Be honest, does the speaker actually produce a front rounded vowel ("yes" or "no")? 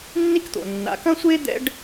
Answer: no